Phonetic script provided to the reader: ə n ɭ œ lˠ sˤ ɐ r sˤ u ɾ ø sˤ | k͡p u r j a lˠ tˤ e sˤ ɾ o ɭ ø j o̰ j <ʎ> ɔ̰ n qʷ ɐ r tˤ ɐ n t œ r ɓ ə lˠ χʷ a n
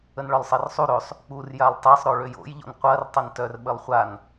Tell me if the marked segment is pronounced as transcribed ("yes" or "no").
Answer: yes